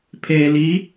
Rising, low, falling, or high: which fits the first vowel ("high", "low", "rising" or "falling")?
low